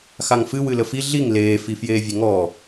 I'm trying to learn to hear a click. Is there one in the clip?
no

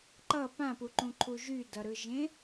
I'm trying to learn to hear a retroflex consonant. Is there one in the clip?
no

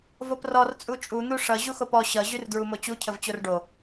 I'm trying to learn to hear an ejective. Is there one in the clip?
yes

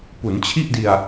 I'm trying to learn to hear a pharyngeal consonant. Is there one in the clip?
no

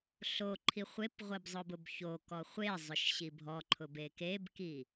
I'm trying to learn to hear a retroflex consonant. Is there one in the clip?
no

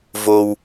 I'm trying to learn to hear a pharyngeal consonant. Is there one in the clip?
no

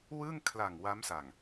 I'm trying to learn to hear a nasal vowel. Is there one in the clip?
no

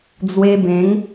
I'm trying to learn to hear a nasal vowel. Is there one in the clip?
yes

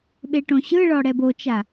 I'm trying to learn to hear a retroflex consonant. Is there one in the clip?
yes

